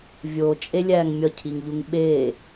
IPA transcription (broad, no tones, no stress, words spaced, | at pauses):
vʲot͡ʃʼe lʲæːŋmʲɒcʰiŋʎuŋ ɓeː